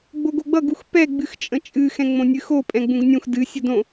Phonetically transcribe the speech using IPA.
ɡ͡boɡoɡ͡bʌɡ uxpɛ ɡ͡bɨxt͡ʃʼə̃t͡ʃʼɨ xɛ̃ŋ͡mõnʲɨxo pʼɛ̃ɡ͡bũɡnʲũx dɨ sʲudõ

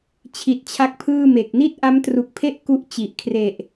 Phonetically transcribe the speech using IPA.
t͡ɕʰi˨˩t̚t͡ɕʰa˦˥k̚pʰɯː˥˩me˨˩k̚ ni˥˩t̚ʔa˦˥mtru˨˩k̚pʰe˥˩ʔ ku˥˩ʔt͡ɕi˨˩ʔ kʰre˨˩ʔ

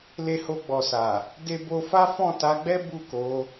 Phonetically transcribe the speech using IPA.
le˧ho˧ɡ͡bɔ˨sa˨ | de˧bo˧fa˦ fɔ̃˦˨ ta˨˦ɡ͡bɛ˦ bu˦˨ko˨˦

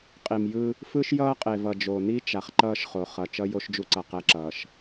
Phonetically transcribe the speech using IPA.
qʼi˨mjɯ˦ | fɯ˦ʃjʌː˦qʼe˨ vʌ˨d͡ʒo˨ni˦ t͡ʃa˨χǃʌː˦ʃχo˨ χʌ˨ t͡ʃʌ˦ jo˦ʃd͡ʒu˦ǀʌ˨ qɛ˦ǁʌː˨ʃ

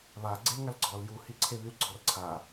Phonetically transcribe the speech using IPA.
βa ɡ͡ǀelŋalɡ͡ǀɔl ju hiǀʰeβyl ɡ͡ǀɔrǀʰa

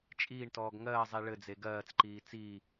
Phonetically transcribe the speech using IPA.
t͡ʃʼiːɳtɔːɡ ŋɜːzˤi ɭɘd͡ze ɡɜːt͡sǃiː t͡siː

